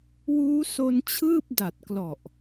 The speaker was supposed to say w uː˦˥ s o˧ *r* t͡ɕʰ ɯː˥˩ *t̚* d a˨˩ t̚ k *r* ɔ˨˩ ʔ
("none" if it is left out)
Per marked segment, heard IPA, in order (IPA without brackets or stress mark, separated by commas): n, p̚, l